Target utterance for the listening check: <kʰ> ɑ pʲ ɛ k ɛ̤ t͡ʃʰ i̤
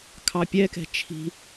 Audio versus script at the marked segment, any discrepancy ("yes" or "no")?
no